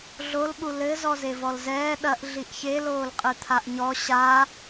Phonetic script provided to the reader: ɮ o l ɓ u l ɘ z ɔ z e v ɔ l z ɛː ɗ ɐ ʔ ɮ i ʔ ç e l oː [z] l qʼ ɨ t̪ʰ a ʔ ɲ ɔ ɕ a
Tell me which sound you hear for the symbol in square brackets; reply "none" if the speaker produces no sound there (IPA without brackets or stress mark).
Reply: none